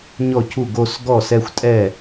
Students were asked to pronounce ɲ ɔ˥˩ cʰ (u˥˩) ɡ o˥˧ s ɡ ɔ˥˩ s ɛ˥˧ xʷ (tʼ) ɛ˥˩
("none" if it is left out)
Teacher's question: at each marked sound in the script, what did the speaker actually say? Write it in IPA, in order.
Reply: u˥˩, tʼ

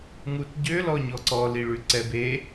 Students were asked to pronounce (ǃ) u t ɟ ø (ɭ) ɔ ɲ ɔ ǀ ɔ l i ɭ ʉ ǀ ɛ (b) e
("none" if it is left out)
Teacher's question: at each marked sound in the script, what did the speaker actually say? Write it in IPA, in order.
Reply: ŋ, l, b

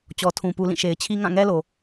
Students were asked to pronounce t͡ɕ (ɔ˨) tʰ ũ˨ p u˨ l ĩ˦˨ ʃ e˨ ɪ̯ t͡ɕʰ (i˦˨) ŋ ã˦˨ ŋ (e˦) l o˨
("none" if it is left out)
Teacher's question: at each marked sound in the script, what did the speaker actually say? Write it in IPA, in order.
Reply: ɔ˨, i˦, ɛ˦

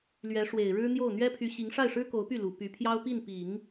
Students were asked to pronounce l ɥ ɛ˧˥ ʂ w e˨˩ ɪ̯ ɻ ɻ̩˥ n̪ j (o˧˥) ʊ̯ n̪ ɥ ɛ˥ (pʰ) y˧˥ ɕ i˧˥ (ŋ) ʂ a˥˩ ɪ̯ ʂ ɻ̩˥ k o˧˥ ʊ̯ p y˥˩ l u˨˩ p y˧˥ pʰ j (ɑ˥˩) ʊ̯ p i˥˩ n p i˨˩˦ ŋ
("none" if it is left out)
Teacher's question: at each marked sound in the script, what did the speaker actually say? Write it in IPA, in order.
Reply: o˥˩, pʰ, ŋ, ɑ˥

